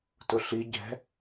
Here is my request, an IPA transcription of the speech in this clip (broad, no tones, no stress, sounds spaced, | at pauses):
t ʊ ɬ i ɟ ɛ̤